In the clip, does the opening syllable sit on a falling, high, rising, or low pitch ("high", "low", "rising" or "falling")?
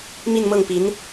falling